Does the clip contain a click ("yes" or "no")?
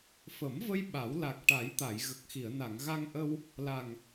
no